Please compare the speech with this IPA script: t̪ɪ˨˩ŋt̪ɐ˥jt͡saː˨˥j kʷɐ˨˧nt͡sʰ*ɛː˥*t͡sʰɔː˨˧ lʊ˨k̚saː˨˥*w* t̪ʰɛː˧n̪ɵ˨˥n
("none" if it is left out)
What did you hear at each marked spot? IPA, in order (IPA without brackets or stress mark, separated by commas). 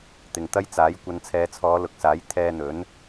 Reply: ɛː˨˧, j